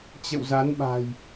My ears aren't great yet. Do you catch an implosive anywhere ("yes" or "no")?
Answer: yes